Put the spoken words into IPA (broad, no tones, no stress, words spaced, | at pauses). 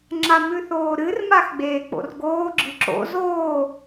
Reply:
ŋ͡ǁamʉθoːɾɨr maxɡ͡beːk͡po̰rɡoː ɡ͡ǁɨǁo̰z oː